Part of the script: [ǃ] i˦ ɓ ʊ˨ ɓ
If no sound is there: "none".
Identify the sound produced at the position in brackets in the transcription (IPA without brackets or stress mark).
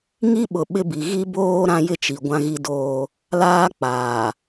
ŋ